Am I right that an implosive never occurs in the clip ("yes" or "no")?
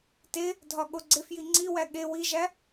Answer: no